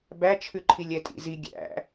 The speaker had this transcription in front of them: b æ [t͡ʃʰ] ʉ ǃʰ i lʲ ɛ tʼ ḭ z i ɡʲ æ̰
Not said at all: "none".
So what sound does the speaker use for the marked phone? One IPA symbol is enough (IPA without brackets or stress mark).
t͡ʃʰ